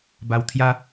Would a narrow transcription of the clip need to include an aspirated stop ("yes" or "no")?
yes